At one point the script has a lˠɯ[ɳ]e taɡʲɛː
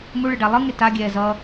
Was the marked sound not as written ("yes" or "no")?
yes